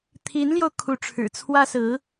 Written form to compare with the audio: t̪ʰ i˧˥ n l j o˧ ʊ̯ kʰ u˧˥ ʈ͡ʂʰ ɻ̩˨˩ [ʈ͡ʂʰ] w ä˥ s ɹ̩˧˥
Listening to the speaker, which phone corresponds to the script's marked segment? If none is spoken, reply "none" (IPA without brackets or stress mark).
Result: t͡sʰ